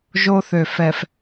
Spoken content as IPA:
ʒo˦θø˨ fɛ˨f

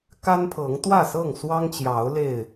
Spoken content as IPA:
ka˦npʰɤ˨˦ŋ t̪wä˥˨sɤ˥˨ŋswɑ˦ŋt͡ɕjɑ˨˦ʊ̯ le˥˨ɪ̯

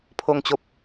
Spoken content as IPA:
pʰo˨˩ŋt͡ɕo˨p̚

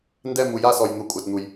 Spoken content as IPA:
ndɛ˥˨mu˨ja˥˨sɔ˨j n̪u˨kʷʼa˨tn̪u˨j

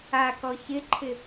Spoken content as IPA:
akɔ çɪǃʰɪ

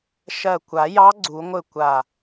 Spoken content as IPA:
ʃɜ˧˩ kʷa˨˩˦jɑ˧˥ ɡ͡ǀu˨˩˦ŋʷɘ˥˩ kʷa˧˩

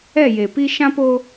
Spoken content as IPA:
ɛ˦˨je˨pi˦ ʃã˦po˦

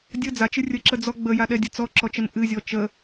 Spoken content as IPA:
dʲə d͡zat͡ʃɨ rʲəǁəd͡zɔ ɡ͡bəjaɗɛdʲə t͡sɔǁɔt͡ʃən ʔɨzʲɔ t͡ʃə

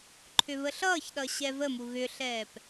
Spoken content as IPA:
ǃʰʏβəɬʌːçɗʌ ɕɛvəmu ɣʏɬɛːp

